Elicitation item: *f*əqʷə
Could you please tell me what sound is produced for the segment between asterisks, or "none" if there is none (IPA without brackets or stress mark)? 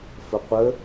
f